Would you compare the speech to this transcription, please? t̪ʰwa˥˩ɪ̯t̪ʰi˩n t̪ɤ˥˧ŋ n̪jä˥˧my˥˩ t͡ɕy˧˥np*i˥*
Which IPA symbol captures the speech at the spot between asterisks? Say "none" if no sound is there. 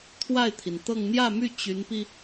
i˧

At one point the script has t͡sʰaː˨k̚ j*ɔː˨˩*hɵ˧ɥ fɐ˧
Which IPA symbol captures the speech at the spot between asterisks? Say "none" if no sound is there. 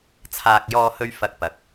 ɔː˧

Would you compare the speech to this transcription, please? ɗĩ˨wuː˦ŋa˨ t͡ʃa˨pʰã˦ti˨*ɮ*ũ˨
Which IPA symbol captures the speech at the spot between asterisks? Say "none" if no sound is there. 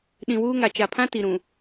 ɾ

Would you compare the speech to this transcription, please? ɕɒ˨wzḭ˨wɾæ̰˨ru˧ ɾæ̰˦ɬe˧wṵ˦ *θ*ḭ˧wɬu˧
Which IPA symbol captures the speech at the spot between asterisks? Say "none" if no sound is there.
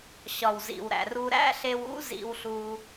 z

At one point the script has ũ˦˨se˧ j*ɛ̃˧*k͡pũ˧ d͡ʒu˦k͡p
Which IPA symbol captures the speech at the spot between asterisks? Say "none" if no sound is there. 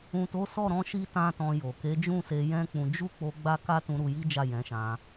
ɛ̃˦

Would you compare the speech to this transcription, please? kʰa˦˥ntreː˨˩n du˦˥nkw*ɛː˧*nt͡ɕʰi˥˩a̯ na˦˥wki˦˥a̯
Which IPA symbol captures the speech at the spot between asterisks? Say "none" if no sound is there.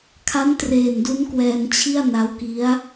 ɛː˧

